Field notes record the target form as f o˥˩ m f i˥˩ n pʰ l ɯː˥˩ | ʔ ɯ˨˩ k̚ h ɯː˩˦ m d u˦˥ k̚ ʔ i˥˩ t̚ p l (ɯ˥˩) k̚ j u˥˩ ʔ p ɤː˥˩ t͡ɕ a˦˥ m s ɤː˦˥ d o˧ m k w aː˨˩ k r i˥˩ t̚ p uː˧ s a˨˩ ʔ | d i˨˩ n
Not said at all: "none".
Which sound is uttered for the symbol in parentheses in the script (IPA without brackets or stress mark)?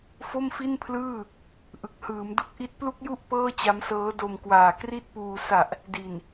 u˥˩